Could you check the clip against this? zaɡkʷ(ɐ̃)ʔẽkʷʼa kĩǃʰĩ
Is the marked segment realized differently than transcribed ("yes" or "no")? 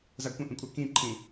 no